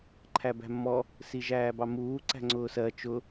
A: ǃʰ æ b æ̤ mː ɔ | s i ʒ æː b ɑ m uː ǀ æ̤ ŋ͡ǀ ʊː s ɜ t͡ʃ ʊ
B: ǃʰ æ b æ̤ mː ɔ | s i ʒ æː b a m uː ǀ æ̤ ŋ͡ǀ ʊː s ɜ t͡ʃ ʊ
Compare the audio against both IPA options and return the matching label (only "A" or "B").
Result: A